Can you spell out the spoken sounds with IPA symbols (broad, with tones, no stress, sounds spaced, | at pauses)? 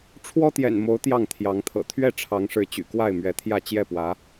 ʈ͡ʂʰ w ɔ˦ t̪ j ɛ̰˨˩ n m o˨˦ ʊ̯ t̪ j ɑ˥˨ ŋ t̪ʰ j ɑ˨˦ ŋ t̪ʰ ɤ̰˨˩ t̪ʰ ɥ ɛ˥˨ ʈ͡ʂʰ ɑ˨˦ ŋ ʂ ɻ̩˨˦ t͡ɕ y̰˨˩ k w a˥˨ ɪ̯ m ɥ ɛ˨˦ t̪ʰ j ä˥˨ t͡ɕ j ɛ˥˨ p w ä˨˦